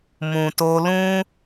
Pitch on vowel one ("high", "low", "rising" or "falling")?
low